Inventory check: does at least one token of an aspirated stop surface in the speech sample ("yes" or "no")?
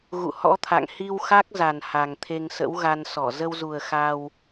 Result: yes